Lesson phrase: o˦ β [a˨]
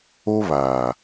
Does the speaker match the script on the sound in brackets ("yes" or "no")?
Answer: no